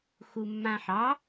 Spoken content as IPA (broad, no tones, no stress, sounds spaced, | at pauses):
x u mː ã ħ ɑ